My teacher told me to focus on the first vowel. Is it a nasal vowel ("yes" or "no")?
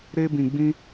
no